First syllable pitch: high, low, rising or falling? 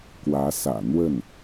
rising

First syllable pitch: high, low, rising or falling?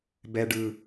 low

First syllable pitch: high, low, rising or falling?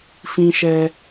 high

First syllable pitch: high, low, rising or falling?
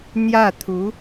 falling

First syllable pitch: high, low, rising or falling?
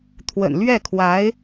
low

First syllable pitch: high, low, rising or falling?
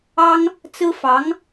high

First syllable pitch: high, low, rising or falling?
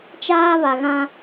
high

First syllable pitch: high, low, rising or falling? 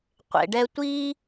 low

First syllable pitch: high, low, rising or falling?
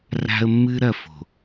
high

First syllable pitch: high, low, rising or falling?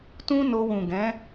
high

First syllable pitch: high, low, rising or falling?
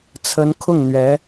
rising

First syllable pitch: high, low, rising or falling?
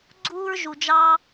high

